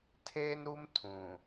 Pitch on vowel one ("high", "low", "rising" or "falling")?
high